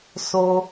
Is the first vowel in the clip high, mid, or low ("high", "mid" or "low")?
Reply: mid